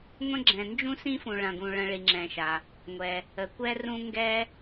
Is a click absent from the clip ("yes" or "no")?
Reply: no